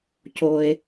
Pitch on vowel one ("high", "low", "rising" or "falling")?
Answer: low